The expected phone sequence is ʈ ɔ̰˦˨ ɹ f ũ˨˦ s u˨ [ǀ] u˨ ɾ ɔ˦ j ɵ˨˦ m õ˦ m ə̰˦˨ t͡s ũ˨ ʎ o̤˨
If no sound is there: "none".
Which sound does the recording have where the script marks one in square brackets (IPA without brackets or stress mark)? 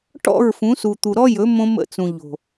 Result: t̪